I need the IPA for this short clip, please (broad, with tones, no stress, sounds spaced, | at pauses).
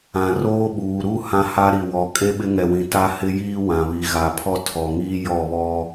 ã˨ r oː˦ ɓ uː˨ ɾ u˦˨ h ã˦ h a˦ ɾ i˨ w ɔ˨ kʼ e˦ ɓ ɪ˦ ŋ ɛ˨ w ĩ˨ t a˦ h ɪ˦ j iː˦ w ã˨ β i˨ ɣ a˨ pʰ ɔ˦ tʰ ɔ˨ ŋ iː˦ j ɔ˦˨ β ɔ˦